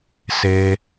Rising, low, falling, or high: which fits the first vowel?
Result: high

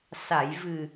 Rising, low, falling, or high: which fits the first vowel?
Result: low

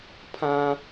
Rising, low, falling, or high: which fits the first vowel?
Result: high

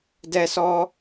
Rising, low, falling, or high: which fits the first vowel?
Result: high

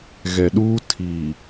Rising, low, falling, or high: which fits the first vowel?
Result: low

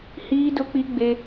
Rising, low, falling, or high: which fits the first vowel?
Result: high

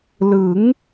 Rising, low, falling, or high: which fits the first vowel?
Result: rising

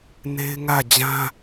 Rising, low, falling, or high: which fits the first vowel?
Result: high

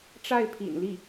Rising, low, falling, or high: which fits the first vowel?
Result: falling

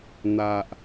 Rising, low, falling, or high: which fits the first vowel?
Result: low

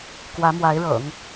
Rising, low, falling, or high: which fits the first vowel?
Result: rising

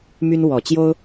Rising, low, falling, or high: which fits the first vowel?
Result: high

